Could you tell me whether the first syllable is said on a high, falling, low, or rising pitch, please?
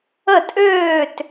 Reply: falling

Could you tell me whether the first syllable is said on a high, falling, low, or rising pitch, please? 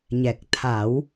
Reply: low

